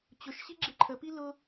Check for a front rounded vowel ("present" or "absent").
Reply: absent